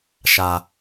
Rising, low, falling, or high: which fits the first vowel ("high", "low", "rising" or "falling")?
low